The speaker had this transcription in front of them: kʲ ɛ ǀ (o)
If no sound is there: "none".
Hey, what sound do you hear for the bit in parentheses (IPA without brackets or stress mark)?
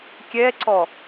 ɔ